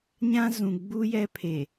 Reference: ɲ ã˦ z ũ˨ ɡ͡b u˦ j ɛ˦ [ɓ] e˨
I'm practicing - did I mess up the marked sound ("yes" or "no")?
yes